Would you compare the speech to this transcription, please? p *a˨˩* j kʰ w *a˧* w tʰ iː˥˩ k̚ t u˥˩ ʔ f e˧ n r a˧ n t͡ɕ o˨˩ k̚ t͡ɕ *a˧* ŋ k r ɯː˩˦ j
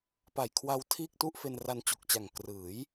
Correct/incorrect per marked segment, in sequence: correct, correct, incorrect: a˨˩

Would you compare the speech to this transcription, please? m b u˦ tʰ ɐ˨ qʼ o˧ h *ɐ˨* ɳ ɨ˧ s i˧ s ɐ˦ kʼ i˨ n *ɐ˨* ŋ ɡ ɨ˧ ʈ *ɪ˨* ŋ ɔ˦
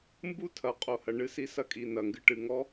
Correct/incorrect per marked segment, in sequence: correct, correct, incorrect: ɨ˨

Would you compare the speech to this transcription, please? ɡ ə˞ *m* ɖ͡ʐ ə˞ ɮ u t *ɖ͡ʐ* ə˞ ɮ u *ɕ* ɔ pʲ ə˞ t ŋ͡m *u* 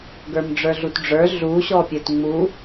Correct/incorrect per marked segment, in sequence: correct, correct, correct, correct

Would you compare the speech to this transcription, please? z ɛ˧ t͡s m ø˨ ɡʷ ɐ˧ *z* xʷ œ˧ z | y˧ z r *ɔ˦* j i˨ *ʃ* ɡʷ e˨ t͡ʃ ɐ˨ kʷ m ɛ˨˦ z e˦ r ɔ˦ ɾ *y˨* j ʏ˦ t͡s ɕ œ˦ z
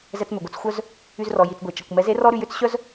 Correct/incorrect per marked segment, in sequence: incorrect: t͡s, incorrect: ɔ˨, incorrect: t͡s, incorrect: y˧

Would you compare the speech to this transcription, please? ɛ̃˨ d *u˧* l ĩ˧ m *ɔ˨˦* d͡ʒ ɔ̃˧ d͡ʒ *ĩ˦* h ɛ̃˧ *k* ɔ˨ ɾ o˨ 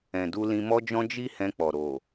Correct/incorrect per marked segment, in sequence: correct, incorrect: ɔ˧, incorrect: i˦, incorrect: k͡p

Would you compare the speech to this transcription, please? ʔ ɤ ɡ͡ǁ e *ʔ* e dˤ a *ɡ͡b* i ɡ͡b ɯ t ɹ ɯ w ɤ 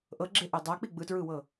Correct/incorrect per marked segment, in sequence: correct, incorrect: k͡p

